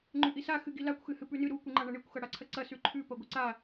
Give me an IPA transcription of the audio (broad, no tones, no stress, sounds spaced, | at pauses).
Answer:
ŋ͡ǃ ʉ ʔ i s a x ɨ ɡ i l a kʷ x ɨ h ɨ p ʉ n ɨ ɾ u kʷ i ŋ͡ǃ a ɳ ɐ ɳ i kʷ x ɐ ɽ a ǀʰ ɐ ǀ ɐ s ʉ ǃʰ ʉ p ɐ ɡʷ ɨ ǀ a